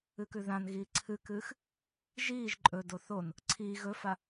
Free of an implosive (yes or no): yes